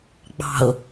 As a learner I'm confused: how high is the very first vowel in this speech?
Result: low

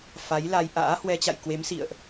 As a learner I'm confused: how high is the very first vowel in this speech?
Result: low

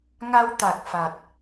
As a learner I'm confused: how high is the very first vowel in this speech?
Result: low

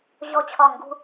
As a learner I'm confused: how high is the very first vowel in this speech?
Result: mid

